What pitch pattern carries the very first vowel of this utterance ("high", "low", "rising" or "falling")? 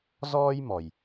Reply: high